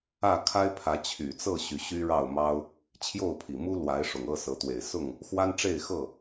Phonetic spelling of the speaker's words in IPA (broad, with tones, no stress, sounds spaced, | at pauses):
ä˥˨ kʰ a˦ ɪ̯ pʰ ä˨˦ t͡ɕʰ y˨˩ t͡s ɤ˥˨ ɕ y˨˦ ɕ y˦ ɻ ɑ˥˨ ʊ̯ m ɑ˦ ʊ̯ | t͡ɕʰ j o˥˨ ʊ̯ pʰ i˨˩ m u˦ l w a˨˦ ɪ̯ ʂ ʊ˨˩ ŋ ɤ˥˨ s ɤ˨˦ t̪ w e˨˩ ɪ̯ s ʊ˥˨ ŋ | x w a˦ n ʈ͡ʂ e˥˨ ɪ̯ x ɤ˥˨